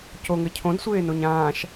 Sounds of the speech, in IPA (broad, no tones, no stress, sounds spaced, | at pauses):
c o ŋ ɘ cʰ õ d sʷ eː n o ɲ ãː ʃ